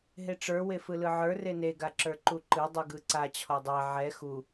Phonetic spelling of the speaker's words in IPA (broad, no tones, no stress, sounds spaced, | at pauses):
ɦ e ʈ͡ʂ ə˞ w e f ɯ l ɯ ʕ ə˞ r e n e ɡ a ǁ ə˞ ǃ u ǃ ɯ dˤ u ɡ ɯ ǀ a t͡ɕʰ ɔ dˤ ɛ ʕ ɛ x u